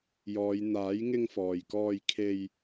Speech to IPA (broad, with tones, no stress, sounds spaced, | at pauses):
j ɔː˨˧ j n̪ aː˨˥ j ŋ ɪ˧ ŋ f ɔː˨ j k ɔː˧ j kʰ e˧ j